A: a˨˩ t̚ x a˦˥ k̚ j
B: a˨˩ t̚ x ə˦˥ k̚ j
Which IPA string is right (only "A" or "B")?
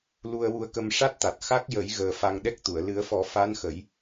A